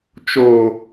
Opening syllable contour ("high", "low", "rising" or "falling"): low